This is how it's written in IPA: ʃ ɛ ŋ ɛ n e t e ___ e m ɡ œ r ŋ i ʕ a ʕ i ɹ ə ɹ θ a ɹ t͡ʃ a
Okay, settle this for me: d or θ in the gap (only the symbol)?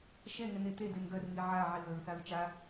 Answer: d